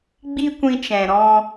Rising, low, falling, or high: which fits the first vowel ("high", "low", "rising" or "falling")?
high